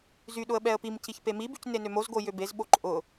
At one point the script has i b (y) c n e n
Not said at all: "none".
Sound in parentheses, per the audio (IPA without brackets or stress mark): y